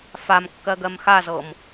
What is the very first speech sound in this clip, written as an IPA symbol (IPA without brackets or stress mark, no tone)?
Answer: f